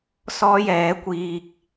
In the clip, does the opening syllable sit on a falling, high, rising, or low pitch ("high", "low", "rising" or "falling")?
high